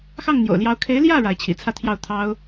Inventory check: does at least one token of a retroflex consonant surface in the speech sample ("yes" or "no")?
yes